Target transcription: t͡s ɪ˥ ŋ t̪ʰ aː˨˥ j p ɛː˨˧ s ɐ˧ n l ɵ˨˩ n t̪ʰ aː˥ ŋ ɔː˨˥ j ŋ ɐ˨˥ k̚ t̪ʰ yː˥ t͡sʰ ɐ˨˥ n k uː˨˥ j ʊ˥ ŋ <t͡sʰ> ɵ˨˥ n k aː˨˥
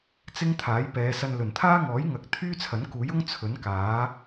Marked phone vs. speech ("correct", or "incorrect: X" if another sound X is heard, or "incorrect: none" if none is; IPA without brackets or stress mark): correct